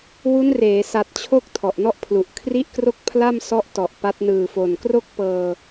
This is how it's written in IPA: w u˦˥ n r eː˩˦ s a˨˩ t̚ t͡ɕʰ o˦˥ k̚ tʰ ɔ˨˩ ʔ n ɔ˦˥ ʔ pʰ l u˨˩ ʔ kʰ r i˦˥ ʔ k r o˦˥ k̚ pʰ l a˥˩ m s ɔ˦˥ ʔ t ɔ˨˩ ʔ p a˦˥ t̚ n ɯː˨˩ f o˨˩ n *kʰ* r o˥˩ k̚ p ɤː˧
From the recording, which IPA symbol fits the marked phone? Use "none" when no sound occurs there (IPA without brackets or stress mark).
k